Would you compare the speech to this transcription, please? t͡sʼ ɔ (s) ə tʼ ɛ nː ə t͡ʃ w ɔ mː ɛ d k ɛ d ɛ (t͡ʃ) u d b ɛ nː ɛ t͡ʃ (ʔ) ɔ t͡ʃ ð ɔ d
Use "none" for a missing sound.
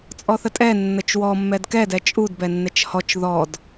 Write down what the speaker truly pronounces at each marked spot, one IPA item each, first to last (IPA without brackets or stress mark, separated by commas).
θ, t͡ʃʼ, h